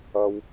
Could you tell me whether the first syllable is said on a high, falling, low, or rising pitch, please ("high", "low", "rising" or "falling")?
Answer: high